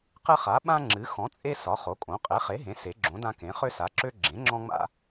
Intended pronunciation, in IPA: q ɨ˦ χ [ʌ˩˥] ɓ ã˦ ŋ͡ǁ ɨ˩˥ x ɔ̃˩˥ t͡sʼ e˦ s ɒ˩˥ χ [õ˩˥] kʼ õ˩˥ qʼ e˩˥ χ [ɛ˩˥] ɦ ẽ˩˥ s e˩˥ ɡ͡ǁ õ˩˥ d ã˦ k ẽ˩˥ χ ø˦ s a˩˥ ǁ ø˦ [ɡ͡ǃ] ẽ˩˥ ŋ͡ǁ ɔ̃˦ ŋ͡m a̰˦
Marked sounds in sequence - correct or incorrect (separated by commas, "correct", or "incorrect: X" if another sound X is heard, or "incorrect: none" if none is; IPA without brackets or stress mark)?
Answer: incorrect: a˩˥, incorrect: o˩˥, incorrect: e˩˥, incorrect: ɡ͡ǁ